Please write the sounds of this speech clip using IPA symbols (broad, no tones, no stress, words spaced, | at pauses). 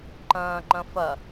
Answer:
ǃɐ̃ːŋ͡ǃɐ̃ fɐ